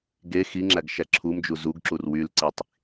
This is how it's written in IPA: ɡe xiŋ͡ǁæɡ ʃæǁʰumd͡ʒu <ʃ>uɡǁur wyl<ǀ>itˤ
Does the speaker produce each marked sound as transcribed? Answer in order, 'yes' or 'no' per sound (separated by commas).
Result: no, yes